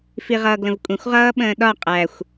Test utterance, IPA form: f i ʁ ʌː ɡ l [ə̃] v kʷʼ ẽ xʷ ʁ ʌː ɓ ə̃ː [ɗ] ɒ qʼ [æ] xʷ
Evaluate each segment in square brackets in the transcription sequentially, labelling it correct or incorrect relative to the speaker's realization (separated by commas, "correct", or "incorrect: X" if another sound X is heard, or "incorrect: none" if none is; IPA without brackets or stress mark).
correct, correct, correct